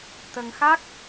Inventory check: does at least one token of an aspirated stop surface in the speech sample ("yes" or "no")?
no